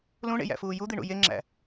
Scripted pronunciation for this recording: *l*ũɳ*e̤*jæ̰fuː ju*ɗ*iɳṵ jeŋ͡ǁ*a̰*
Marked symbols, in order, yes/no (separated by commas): yes, no, no, no